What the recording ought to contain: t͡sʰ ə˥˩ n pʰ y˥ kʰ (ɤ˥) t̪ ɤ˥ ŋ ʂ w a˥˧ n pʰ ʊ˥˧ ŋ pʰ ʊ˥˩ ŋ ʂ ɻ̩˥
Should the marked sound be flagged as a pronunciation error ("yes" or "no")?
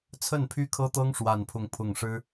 no